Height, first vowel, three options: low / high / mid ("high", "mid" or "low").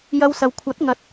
low